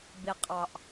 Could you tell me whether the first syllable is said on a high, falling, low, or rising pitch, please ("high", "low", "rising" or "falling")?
low